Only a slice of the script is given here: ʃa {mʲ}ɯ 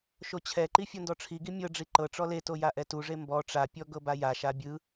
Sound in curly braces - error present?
yes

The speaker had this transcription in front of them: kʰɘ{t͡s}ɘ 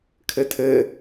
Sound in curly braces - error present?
yes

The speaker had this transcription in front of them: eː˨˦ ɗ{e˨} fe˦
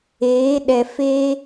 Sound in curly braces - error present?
yes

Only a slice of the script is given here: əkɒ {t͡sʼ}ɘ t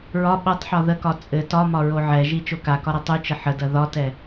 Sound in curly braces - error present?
no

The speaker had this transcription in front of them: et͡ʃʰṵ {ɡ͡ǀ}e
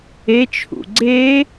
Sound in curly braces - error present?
no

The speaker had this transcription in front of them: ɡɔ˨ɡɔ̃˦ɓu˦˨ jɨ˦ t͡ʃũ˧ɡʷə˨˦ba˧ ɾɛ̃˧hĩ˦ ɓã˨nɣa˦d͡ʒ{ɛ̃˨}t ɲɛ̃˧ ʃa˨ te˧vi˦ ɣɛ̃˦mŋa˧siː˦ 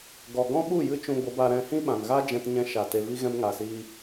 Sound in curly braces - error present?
yes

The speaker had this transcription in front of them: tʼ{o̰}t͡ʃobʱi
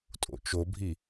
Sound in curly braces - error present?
no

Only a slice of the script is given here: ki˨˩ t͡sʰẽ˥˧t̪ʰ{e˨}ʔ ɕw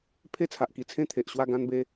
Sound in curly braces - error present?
no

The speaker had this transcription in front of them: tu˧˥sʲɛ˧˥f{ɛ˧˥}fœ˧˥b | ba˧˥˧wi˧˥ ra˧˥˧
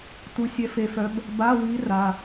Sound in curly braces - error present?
yes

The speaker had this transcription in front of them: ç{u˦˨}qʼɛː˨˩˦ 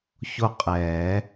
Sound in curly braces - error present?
yes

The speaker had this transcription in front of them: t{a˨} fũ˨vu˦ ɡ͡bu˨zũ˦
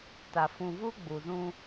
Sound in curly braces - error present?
no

